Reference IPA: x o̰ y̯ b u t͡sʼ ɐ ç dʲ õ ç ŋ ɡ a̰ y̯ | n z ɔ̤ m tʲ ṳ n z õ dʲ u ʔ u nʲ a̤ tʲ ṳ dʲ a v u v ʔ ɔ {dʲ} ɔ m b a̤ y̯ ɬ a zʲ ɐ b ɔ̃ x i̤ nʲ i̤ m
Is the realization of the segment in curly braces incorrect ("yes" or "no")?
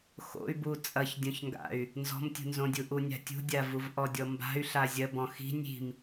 no